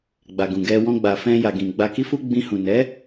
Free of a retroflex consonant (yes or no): yes